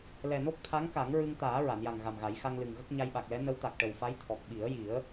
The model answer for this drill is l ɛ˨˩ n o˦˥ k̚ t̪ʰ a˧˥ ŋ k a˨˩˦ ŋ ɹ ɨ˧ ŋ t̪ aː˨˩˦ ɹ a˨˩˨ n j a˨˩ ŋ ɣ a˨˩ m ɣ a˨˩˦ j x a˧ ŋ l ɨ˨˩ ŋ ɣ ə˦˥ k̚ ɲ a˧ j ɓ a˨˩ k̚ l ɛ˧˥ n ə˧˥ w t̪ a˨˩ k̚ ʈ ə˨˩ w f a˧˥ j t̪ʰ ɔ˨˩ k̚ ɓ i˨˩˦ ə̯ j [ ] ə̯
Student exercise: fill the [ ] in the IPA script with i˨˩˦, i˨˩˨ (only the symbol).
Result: i˨˩˦